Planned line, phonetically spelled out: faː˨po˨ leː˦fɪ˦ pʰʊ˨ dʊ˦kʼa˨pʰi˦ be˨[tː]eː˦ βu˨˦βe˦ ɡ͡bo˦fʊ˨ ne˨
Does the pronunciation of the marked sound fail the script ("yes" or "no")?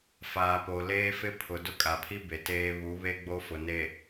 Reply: yes